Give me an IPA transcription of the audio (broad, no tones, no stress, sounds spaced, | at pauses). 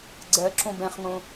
ɡ͡ǀ ɜ ǁ õ b ɛ̃ χ ŋ õ